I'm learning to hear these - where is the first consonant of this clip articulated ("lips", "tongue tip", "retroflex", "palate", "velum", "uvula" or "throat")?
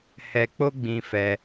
throat